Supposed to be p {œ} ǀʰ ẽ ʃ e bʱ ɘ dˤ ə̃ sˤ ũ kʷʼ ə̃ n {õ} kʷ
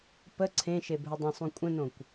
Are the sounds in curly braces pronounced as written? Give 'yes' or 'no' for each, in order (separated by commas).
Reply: no, yes